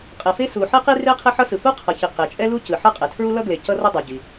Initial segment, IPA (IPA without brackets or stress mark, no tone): qʼ